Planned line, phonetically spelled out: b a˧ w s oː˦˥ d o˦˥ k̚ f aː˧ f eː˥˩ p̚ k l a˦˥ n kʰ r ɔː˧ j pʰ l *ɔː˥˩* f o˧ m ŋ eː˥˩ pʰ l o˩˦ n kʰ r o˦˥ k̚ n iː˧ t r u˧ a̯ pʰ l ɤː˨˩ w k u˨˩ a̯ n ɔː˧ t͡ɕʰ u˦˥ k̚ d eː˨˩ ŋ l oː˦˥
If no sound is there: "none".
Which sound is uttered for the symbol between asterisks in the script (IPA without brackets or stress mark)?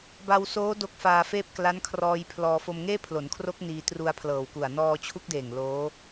ɔː˧